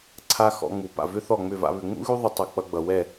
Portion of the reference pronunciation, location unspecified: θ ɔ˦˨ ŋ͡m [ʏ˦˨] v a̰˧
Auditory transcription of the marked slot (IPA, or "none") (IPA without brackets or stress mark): ʏ˦˨